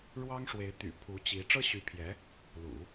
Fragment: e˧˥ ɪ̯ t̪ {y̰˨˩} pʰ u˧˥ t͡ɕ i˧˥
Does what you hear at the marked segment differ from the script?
no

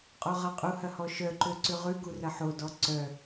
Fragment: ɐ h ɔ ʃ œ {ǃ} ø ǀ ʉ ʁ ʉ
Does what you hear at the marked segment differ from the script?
no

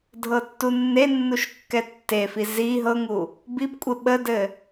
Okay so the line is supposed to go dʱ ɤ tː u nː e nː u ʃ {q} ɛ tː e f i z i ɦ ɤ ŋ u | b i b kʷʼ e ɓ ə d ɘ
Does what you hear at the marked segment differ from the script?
yes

